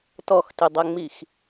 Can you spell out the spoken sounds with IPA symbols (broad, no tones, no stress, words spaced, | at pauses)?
tɔxtɘdˤɐŋ͡mix